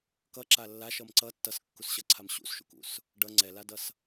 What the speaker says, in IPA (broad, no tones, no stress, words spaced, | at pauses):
kʌǁa lːaʃʌm ǀʌ tːʌskːusɕʌǀʰam ɕṵsʃṵkṵs | ɖʌ ŋ͡ǀɛladʌs